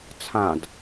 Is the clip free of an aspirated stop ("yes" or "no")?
no